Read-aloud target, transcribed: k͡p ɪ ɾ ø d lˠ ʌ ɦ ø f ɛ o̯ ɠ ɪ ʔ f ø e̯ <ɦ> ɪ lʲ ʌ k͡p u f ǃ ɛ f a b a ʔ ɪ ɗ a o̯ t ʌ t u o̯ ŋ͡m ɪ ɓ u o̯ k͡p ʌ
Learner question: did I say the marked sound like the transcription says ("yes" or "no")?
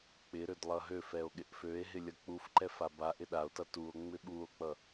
yes